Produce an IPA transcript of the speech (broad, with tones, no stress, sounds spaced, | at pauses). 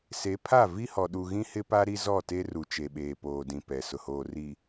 s e˨˦ pʰ a˦˨ v i˦ h ɔ˨ ɗ u˨ ɣ ĩ˦ h ɪ˦ p a˦ ɾ i˦ z ɔ˦˨ t e˦ r u˨ t͡ʃ e˨ ɓ eː˨ p oː˨ d ĩ˨ p ɛ˨ s ʊ˨ h oː˨ r iː˨